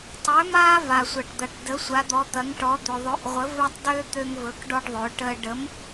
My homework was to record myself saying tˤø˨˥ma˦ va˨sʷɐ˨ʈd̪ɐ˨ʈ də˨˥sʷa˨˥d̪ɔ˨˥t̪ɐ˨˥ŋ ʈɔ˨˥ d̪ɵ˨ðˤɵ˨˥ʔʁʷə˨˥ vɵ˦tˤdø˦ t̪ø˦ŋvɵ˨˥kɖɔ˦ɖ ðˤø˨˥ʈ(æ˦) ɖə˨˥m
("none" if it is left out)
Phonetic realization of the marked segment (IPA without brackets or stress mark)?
ə˦